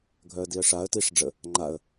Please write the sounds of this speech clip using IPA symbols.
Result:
ɡʱ œ ə̯ d i ə̯ ʂ a ə̯ t i ʂ ɖ͡ʐ ə | ŋ͡ǃ a ə̯

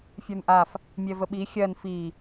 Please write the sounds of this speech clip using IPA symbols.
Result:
fʲ ə˞ n ʔ a f | mʲ ɛ v ə ɓ i xʲ ɜ n f i

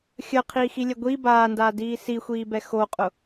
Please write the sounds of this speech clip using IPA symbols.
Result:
xʲ əː qʰ iː x i lʲ ɛ ɡʷ i b aː n d aː d iː s i xʷ iː b ɛ x o qʼ ʊ

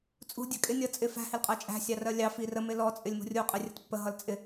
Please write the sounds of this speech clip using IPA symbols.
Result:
t͡sʼ ṳ dʲ æ kʼ ɪ nʲ ʌ t͡sʼ ɪ f æ̤ h ɪ l qʼ ɜ t͡ʃʼ æ̤ sʲ ɑ r ɜ lʲ ɑ f i r ə m ɪ l ɔ t͡sʼ ɪ lʲ m ṳ rʲ u qʼ ɪ rʲ ə t pː ə ɦ ʌ l t͡sʼ ɪ

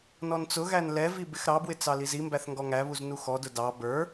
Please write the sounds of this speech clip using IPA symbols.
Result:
n ɔ n t͡s ʊ ɣ æ n l ɛ v i b ɪ x ɾ ɑ b w ɪ t͡s ɑ l i z i m b æ θ ŋ ɡ ɔ ŋ æ β u z n u x ɔ d ʊ d ɑ b ə˞

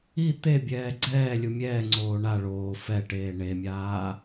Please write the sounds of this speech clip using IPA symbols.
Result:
i t̪ e bʲ ɛː ɡ͡ǀ ɛː lʲ u mʲ ɛː ŋ͡ǀ oː ɳ a ɭ oː f ɛ ʈ eː ɳ e mʲ aː

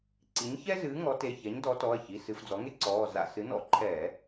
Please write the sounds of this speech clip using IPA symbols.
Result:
ǀ i˩˥ ɲ ç ɛ˥ z ɨː˩˥ ŋ ɔ˩˥ t e˩˧˩ ç ɛ˩˥ ɲ d ɔ˩˥ t ɔ˩˧˩ ɐ̯ ç i˩˧˩ s ɨ˧˩˧ f d͡z ɔ˩˥ ŋ e˥ ǀ ɔː˩˧˩ z a̰˧˩˧ s ɨ˩˥ n ɔ̰˧˩˧ ǃʰ ɛː˧˩˧

